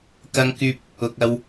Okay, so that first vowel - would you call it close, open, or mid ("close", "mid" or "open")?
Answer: open